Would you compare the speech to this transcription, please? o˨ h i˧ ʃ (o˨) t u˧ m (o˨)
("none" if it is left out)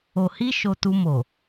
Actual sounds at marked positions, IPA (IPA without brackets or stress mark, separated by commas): o˧, o˨